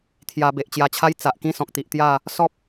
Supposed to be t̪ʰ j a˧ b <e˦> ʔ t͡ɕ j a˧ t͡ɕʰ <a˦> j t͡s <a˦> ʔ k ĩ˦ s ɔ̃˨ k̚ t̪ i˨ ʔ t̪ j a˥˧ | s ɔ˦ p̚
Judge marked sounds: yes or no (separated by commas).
no, yes, no